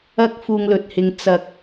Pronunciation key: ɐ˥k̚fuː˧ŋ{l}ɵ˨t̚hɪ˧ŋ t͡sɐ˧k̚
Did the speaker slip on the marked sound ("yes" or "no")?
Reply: no